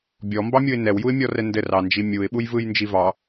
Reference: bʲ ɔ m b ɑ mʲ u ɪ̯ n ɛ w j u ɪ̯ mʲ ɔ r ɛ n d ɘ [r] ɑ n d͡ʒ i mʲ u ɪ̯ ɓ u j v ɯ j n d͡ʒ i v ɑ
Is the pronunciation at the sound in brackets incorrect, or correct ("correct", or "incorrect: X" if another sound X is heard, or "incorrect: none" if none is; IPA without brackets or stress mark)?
correct